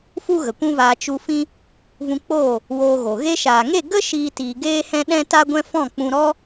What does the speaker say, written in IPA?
f u˦ ɣ ə˨ kʷ ũ˦ v aː˧ t͡ʃ u˧ f ĩ˦ | v ũ˧ k͡p oː˦˨ | w oː˧ ɣ o˨ ɣ e˧ ʃ aː˨ ŋ e˦˨ ɡ ə˦ ʃ iː˦ t iː˧ ɡ eː˦ h ɛ̃˦ ɗ ɛ̃˦ t a˦ ɡʷ ɛ̃˦ f ɔ̃˦˨ k͡p ũ˧ ɾ ɔ˦

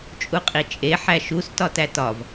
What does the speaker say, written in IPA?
t͡ʃʼ u qʼ i t͡ʃʼ e ħ æ ʃ u s t ɒ t æ t ɒ v

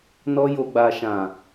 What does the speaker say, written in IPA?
n ɔ˧ j o˨ ɡ͡b a˨ ʃ ã˨

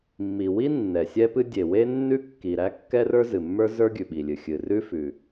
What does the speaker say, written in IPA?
mː i˩ w i˥ nː ɛ˩ sʲ ɛ˥ p ɨ˥ dʲ e˩ w e˥ nː ʉ˥ kː i˩ ɾ æ˥ kː ɛ˥ r ə˞˥ z ɨ˩ mː ə˞˥ z ə˞˥ ɡʲ ʉ˩ ɓ i˩ lʲ ɨ˩ xʲ ɨ˩ r ʉ˥ f ʉ˩

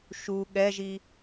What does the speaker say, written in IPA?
ʃ u ɠ ɛ ʒ i

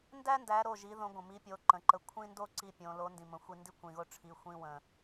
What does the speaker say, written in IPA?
n d æ˥ n d æ˨˥ ɾ o˩˧˩ ʒ i˨˥ ð õ˨˥ ɡʷ ə̃˩ m i˨˥ pʲ o˨˥ ǃ ə̃˩˧˩ ǃ ə˨˥ kʷʰ ĩ˥ n d o˥ ǀ i˧ pʲ õ˩˧ l o˨˥ n d ĩ˩ m ə̃˩˧ xʷ i˧ n d i˥ kʷ ĩ˩˧˩ ɣ o˥ ʈ͡ʂʰ i˩˧˩ xʷ ĩ˥ w ə̃˧

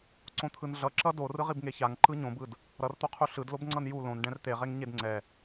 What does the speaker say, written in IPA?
ǀ õ t̪ʰ ɯ n ɮ ʌ ǁ ʌ d o r ɯ ʁ i b ŋ e ç a ŋ ǃ ɯ ɲ õ b ɯ d | ɾ ʌ r t̪ o qʰ u ɬ ɯ d l o b ŋ͡ǀ ʌ n j u l õ n ɖ ɛ̃ r t̪ e ʁ e ŋ ɲ e d ŋ͡ǀ ɛ

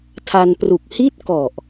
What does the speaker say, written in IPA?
tʰ a˧ n p r u˨˩ k̚ h i˥˩ t̚ k ɔ˨˩ ʔ

